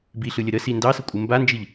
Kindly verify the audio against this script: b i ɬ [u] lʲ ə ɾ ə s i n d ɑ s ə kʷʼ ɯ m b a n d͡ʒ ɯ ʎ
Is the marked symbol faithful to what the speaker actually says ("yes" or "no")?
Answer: no